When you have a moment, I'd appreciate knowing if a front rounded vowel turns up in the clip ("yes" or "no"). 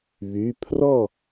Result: yes